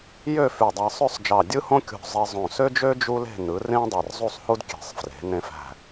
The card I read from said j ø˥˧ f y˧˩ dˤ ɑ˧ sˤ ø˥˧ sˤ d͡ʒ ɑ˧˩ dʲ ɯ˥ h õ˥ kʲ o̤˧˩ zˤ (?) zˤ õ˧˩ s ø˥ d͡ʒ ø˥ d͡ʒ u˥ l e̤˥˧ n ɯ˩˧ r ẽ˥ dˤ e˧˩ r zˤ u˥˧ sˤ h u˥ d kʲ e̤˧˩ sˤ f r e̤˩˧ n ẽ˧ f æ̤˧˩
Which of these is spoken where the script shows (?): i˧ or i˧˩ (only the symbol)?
i˧